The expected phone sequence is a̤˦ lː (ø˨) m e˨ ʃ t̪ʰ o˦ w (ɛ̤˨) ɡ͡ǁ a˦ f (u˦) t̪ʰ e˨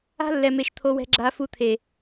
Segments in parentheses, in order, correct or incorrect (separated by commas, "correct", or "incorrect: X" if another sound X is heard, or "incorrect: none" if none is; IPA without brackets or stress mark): incorrect: ɛ˨, incorrect: ɛ̤˦, correct